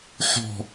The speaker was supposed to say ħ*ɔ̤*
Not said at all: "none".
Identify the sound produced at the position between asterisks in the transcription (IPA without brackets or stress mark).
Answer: ɔ̤